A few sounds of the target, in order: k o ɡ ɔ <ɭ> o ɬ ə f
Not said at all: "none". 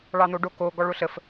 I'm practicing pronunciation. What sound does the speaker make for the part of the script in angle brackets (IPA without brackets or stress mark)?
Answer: ɭ